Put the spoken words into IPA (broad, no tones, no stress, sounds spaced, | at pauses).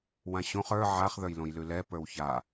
w ã ɕ õ χ ə˞ ʕ a χ ð ə˞ j l õ j l ʉ l ɛ p ə˞ w ç a